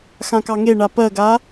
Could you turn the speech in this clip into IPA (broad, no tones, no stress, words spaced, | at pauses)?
xãkɑŋeɳa pɜɡa